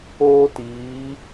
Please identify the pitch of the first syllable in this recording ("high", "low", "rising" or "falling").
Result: high